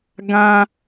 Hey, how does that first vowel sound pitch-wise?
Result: high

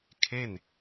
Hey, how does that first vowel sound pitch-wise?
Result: falling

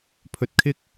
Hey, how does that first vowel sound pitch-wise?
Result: rising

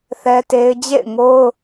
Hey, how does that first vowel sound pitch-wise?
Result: high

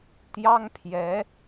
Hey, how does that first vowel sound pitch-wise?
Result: high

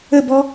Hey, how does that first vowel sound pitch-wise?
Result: falling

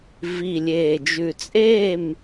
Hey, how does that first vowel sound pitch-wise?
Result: low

